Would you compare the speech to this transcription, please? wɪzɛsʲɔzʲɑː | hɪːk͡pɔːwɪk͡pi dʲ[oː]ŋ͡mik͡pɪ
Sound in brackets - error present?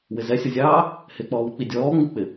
yes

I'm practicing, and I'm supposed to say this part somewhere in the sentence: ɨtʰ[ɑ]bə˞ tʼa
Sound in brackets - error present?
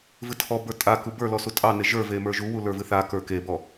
yes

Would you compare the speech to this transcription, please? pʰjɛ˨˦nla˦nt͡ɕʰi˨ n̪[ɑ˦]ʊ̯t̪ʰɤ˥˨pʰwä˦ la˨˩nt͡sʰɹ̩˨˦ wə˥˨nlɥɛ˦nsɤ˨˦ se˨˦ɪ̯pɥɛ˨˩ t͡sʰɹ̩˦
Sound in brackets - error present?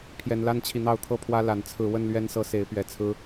yes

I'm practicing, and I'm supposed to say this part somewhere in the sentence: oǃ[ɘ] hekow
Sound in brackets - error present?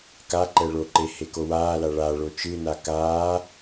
yes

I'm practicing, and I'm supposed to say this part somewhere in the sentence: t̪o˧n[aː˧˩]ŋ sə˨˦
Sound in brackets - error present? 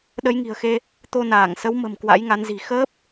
no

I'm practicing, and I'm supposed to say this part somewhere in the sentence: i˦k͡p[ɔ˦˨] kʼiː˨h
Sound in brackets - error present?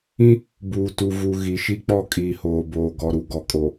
no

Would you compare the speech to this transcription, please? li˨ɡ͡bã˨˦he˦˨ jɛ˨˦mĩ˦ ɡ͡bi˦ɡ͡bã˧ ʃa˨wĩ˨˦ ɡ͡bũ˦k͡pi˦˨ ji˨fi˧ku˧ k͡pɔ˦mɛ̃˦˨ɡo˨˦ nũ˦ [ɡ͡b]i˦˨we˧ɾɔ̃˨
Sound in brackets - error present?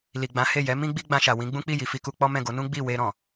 no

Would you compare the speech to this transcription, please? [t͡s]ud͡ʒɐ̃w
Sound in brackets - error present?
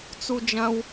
no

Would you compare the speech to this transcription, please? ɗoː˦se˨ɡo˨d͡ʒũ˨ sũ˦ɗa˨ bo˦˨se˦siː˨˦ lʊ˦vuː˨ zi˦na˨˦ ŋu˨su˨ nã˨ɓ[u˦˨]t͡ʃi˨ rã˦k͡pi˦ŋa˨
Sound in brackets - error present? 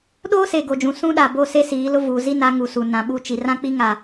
no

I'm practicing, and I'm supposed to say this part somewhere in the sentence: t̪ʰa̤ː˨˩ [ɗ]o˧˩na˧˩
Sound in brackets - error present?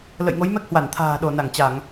no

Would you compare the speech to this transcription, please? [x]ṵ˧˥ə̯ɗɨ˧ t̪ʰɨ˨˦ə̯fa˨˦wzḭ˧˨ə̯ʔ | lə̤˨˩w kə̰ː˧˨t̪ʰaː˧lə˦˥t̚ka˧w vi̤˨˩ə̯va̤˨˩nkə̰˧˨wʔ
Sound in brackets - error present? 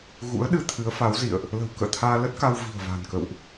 yes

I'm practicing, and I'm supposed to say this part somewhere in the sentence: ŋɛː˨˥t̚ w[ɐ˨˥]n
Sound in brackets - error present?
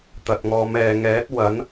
no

